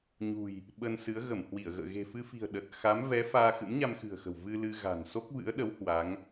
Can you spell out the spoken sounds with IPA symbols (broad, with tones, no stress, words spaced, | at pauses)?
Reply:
ɲṳ˨˩j | ɓə˧nsɨ˨˦ə̯ ɣə˧˩mhwi˧˩ə̯ɣə̰ː˧˨ ɣe̤˨˩fɨ˧fi̤˨˩ə̯ ɗə˨˩t̚ xa˨˦mvɛ˨˦faː˧ xɨ̰˧˥mɲa˧mxɨ̤˨˩ə̯xə̤˨˩w vɨ˧ lɨ˧ɣa̤˨˩n so˦˥k̚vɨ̰˧˥ə̯ɗə˨˦w hwa˨˦ŋ